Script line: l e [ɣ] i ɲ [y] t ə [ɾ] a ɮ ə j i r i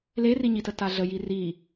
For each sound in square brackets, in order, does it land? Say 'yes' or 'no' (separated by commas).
no, no, no